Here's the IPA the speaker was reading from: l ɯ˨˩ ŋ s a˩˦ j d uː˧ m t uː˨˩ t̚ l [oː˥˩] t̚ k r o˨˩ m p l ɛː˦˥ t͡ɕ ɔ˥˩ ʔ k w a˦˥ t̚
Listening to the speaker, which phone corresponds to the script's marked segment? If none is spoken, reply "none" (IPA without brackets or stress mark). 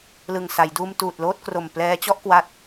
oː˥˩